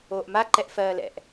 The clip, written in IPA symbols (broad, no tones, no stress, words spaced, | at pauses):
oːʔma ǃɛʔfɜːlɛ̰ʔ